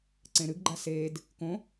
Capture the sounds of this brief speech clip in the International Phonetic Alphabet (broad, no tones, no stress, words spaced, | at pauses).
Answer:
ǀẽɾɨɡɡ͡ǃa seːd | kõ